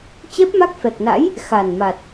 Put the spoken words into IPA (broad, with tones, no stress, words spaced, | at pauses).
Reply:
t͡ɕɛ˦˥p̚ma˦˥k̚fɛ˨˩k̚na̰˧˥j | xa˨˩nma˨˩t̚